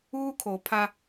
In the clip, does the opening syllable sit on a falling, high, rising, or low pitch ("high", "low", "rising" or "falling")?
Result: high